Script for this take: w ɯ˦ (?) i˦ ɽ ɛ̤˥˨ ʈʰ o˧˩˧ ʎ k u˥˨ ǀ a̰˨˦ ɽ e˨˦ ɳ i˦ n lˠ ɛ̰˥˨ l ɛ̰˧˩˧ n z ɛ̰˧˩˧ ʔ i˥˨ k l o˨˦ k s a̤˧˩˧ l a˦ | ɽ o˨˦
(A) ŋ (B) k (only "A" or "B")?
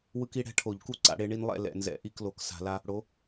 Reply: B